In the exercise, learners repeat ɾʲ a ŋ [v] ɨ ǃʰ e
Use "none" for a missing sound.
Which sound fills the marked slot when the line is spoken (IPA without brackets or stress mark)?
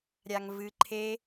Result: v